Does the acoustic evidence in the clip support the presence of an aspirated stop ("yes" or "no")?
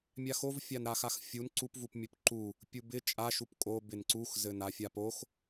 no